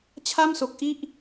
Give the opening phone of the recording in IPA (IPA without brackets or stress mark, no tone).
t͡ɕʰ